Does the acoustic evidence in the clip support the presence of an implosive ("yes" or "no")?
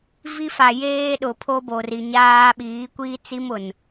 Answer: yes